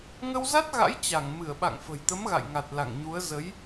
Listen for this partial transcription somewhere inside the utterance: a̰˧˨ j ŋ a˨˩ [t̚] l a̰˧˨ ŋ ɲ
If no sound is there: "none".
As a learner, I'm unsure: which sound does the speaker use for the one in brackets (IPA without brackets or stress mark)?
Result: t̚